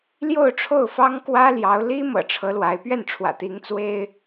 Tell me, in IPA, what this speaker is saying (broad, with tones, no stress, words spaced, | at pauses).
ljo˥˧ʊ̯ʈ͡ʂʰo˥˩ʊ̯fɑ˥ŋ kwä˥ljɑ˧˥ʊ̯ li˥mɤ̰˨˩ ʈ͡ʂʰɤ˧˥lwa˧˥ɪ̯ pɥɛ˥˩nʈ͡ʂʰwä̰˨˩t̪i˧˥ŋ t͡swe˥ɪ̯